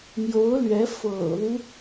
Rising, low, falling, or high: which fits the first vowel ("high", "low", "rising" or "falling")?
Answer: rising